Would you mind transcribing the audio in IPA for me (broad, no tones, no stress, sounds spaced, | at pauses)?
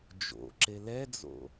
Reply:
d͡ʒ o̰ ǁ e l ɛ d͡z o̰